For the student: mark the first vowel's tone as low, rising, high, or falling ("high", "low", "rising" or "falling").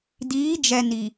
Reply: rising